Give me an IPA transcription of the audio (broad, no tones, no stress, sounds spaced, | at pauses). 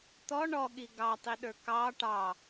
t̪ ɔ ɳ ɔ ɠ i ɡ ɑ tˤ i ɗ ə˞ k ɑ ʈ ɑ